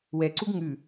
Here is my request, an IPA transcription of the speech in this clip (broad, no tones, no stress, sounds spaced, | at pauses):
w ɛ ǀ u ɡ ŋ ʉ